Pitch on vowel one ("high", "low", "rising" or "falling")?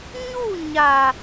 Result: falling